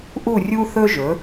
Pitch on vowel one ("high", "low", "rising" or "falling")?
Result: falling